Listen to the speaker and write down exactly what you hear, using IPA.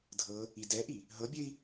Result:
dʱ ɤ | i d ɛ ʔ i | ɦ ɤ bʲ ɘ i̯

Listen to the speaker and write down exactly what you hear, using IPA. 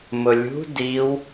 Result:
m ʊ lʲ ṳ d i w

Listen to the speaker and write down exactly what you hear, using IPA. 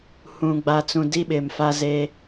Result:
h ũ˨ ɡ͡b a˨ t͡s ũ˨ d i˦ ɓ ɪ˨ m f a˦ z e˦

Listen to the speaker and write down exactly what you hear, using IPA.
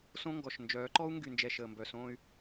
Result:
s õ˦ ŋ ɡ ɔ˨ ʃ n d͡ʒ œː˨˦ ǃ ɔ˦ u̯ ŋ ɡ y˨ n d͡ʒ ɛ˨ ʃ əː˨ m b œ˨ s õː˦ y̯

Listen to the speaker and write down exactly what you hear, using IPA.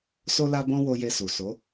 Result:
s o˦ l a˦ b ɔ̃˦ w o˧ j e˧ s u˨ s o˨˦

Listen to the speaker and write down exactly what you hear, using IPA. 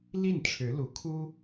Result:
l i˥˩ n ʈ͡ʂʰ ɻ̩˧˥ l u˧˥ kʰ u˥

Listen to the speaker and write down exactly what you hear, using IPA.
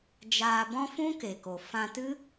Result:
d͡ʒ aː˧ b ɔ̃˦ f ũ˦ k e˨ k o˨ f ã˧ t ɨ˦

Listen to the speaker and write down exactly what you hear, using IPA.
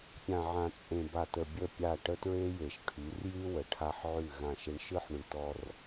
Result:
pʲ ã˨ ʕ ã˨ t͡sʼ ẽ˨ b a˨ t ə˨ bʲ ə˦˨ pʲ a˦˨ ʈ ə˦ t ɹ e˦ j e˨ ʃ ʈʰ y˨˦ r j y˦ w ə˨ ʈʰ a˦ ħ ʕ ʉ˦˨ ɣ ã˦˨ ʃ ɪ˦ ɳ ʃ ɯ˦ ħ ɳ ʉ˨ t ɔ˦ r

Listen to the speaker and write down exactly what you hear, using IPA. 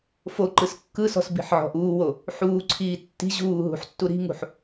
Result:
f o ǃ ɯ s kː ɯ s ɔ̤ s b i̤ ħ ʕ ɔ̤ ʔ uː w o | ħ uː ǀʰ iː tː i̤ ʑ uː ɦ ṳ ħ tː u ɾ i̤ ŋ ṳ ħ

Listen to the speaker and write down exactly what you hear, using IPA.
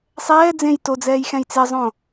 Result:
sˤ ɛː d͡z ẽ j t o d͡z ɛː j x ɛ̃ j t͡s e zˤ õ

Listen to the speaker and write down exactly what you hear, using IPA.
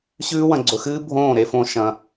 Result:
ɕ ʉː˦ w ɐ̃˧ ɡ͡ǀ ɵ˧ x ɨː˦ bʱ õː˦˨ ɾ e˧ f õ˧ ʃ ɐ̃˧

